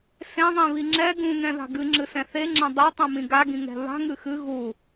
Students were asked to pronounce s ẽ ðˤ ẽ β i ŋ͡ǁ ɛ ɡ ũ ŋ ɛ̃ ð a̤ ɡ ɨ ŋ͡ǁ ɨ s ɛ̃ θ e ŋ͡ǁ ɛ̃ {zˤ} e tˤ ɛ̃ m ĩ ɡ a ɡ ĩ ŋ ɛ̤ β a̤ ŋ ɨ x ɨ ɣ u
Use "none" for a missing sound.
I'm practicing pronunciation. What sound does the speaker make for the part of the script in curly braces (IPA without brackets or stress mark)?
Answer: dˤ